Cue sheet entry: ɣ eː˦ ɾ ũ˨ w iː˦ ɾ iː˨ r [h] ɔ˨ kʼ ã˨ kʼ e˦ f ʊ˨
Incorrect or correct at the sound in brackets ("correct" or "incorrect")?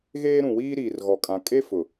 incorrect